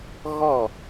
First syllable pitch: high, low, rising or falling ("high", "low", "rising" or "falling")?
falling